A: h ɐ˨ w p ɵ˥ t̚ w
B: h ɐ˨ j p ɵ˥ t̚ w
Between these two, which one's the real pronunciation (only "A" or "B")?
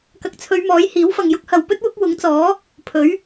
A